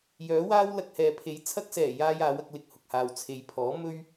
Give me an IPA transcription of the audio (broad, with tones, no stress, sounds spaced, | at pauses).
j œː˨˥ w aː˥ w l ɐ˧ k̚ h ɛː˨ pʰ e˨˥ j t͡sʰ ɐ˧ k̚ s ɛː˨˩ j aː˥ j aː˨˥ w ɐ˧ k̚ l ɪ˧ k̚ h ʊ˨ k̚ h aː˨ w t͡sʰ e˨ j pʰ ɔː˨˥ m ɵ˥ ɥ